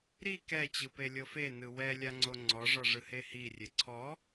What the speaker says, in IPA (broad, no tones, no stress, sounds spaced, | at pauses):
ɾ i k ɛ t͡ɕ ɯ p e lʲ ɤ f e n ɯ w ɛ lʲ a ŋ͡ǀ o ŋ͡ǀ ɔ ʐ ɔ ʐ ɯ h e h i rʲ e ǀʰ ɔ